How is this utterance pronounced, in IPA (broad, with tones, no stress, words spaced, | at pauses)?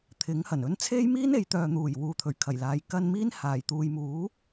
t̪ʰɪ˨˥ŋ hɐ˨˩nɵ˥n t͡sʰe˥jmiː˥n e˨˧jt̪œː˨n̪uː˨˩j wuː˨t̪ʰɵ˨˩ɥkʰɐ˨˩jlaː˨j kɐ˧n miː˧n haː˨˩jt̪uː˨˧jmuː˨˥